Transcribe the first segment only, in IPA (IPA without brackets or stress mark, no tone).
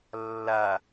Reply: lː